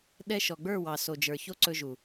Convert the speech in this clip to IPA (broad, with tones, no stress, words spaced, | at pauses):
ɗɛ˧ ʃɔ˨ɡ͡bə˞˦˨ wɑ˨so˨d͡ʒə˞˨ço˧ ǀɵ˧ʒu˨